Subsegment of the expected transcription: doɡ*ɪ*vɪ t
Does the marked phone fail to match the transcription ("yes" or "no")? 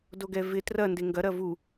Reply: yes